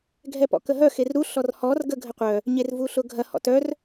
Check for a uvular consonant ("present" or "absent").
present